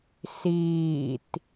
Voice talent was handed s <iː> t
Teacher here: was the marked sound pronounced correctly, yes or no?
yes